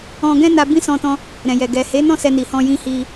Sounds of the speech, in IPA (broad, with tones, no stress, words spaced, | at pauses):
ɔ̃˧ɡɛ̃˦ na˧bĩ˦sɔ̃˧tɔ̃˧ | ɾɛ̃˨jɛ˨ ɡɛ˨ he˨˦nɔ̃˦˨ sɛ˧ ni˨hɔ̃˧jĩ˧ hi˧